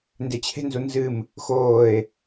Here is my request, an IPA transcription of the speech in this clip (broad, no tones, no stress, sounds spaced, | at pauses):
n d e t͡ɕʰ e̤ n z u n z ɨ m | x oː e̯